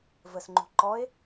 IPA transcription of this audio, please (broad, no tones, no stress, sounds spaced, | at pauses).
v ə s ŋ͡ǃ ṳ ǃ ɔ e̯